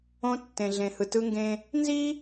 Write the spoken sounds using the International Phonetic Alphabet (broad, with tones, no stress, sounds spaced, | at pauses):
õ˦ tː ẽ˨ ɮ ẽ˨ h ɯ˨ t ɯ˦ ŋ ɡ ẽ˦ | n z i˦